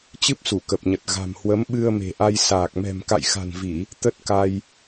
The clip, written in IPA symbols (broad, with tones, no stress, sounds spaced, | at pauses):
t͡ɕ ɨ˦˥ p̚ s u˧˩ k ə˨˩ p̚ ɲ ə˨˩ t̚ ɣ a̤˨˩ m h w ə˨˦ m ɓ ɨ˧ ə̯ m e̤˨˩ ʔ a˧ j s aː˨˩ k̚ m ɛ̤˨˩ m k a̰˧˨ j x a̤˨˩ n v i˧˩˨ | t̪ ə˦˥ t̚ k a˧ j